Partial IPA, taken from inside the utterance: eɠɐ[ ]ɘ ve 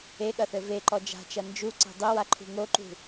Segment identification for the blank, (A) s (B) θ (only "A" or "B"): B